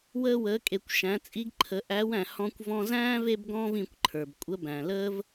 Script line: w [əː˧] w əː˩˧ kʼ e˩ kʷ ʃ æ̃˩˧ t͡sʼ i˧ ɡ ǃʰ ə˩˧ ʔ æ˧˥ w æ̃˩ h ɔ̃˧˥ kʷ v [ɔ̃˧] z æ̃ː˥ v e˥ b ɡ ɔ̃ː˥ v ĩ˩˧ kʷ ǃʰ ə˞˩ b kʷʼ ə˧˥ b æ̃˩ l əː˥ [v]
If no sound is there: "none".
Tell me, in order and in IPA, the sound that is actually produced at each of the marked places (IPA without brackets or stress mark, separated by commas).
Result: əː˧, ɔ̃˧, v